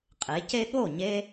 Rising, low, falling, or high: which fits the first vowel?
rising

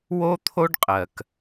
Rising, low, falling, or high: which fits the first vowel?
high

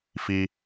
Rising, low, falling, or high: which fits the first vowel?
high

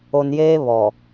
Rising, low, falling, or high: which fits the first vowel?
low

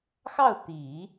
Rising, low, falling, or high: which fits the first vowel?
falling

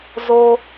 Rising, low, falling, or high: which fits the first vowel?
high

